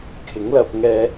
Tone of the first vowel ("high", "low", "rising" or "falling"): rising